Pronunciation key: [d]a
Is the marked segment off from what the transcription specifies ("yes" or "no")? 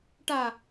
yes